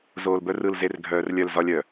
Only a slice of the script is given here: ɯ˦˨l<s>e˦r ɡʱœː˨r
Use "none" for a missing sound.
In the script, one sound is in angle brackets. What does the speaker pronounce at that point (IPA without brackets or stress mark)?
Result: z